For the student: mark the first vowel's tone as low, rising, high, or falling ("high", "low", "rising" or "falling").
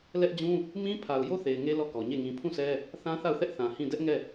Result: high